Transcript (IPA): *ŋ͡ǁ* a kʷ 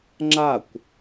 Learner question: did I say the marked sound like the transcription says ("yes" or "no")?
yes